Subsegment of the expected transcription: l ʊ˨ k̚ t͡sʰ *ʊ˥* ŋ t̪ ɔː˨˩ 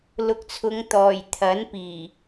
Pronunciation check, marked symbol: incorrect: ʊ˨˧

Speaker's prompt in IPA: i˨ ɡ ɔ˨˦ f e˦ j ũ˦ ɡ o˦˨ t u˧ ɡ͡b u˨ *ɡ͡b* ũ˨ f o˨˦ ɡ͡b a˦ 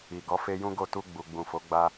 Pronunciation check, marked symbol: correct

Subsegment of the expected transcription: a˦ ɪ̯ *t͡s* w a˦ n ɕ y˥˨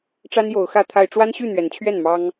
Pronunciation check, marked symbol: incorrect: ʈ͡ʂ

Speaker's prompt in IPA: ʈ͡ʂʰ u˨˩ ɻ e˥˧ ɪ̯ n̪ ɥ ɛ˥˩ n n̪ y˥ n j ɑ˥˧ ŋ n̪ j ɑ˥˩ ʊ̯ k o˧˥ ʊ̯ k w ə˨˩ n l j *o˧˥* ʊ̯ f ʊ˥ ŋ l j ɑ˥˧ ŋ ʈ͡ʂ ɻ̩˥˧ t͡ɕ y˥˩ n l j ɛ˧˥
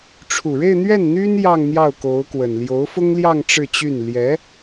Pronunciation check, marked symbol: correct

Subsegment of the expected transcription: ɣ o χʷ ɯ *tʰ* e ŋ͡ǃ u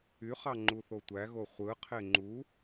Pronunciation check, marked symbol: incorrect: qʰ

